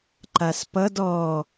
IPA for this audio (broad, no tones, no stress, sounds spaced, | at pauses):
ǃ a s p ʌ d ɔ